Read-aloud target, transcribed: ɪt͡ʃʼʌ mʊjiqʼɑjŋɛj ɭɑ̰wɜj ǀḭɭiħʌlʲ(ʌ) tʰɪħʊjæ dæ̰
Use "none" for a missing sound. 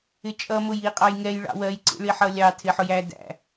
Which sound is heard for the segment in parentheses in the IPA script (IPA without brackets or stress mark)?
ɑ